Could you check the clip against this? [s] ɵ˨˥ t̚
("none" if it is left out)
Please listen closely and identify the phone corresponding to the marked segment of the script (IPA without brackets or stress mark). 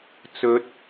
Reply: t͡s